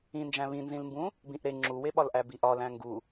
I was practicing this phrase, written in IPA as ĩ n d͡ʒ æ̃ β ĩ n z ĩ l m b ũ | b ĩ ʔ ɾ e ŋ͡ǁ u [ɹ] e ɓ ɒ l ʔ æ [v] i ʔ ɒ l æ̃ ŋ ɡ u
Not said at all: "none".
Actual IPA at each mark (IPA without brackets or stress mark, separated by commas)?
w, b